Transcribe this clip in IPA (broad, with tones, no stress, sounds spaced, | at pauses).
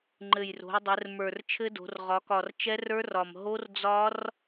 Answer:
ŋ͡ǃ ɘ˨˩ j r o̤˩˧ j dˤ ɘ˩˧ r m ə˞˨˩ r t͡ʃʰ ɘ˦˥ d o̤˩˧ r ʁ ɒ˩˧ k ɒ˨˩ r t͡ʃ ɛ˦˥ r ə˞˦˥ r ɒ˨˩ m ɦ o˦˥ r d͡z ɒ˦˥ r